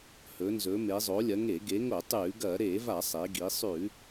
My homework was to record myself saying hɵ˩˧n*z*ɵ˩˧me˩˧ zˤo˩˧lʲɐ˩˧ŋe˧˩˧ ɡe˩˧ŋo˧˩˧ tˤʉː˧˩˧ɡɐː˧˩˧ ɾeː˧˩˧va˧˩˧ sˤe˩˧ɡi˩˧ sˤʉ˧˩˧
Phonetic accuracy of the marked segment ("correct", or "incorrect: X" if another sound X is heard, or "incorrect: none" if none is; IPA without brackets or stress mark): correct